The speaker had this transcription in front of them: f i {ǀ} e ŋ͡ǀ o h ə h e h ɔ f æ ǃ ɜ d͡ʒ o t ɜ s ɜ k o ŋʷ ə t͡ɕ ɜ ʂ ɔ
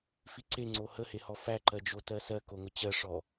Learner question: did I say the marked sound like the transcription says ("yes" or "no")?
yes